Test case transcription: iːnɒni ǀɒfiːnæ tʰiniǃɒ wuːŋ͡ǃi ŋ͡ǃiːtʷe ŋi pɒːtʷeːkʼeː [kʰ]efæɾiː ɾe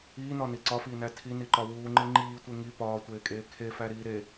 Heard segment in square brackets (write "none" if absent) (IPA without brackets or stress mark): kʰ